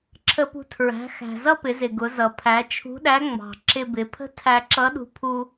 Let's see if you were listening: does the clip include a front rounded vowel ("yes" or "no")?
no